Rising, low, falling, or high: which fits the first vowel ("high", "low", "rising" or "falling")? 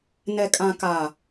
low